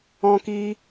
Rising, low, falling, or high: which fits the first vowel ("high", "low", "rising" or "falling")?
high